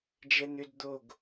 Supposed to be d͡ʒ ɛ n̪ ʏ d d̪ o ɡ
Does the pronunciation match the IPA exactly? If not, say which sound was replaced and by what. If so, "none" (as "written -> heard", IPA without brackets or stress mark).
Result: none